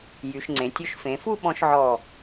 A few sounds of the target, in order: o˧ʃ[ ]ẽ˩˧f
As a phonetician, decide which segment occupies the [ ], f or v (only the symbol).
f